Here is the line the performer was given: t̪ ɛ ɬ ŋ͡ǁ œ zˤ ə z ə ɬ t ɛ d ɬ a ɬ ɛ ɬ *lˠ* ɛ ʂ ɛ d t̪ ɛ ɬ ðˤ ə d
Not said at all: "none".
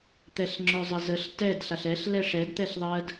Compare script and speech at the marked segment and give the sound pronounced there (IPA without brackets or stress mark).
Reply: l